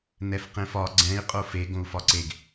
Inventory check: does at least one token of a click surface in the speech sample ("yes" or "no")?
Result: yes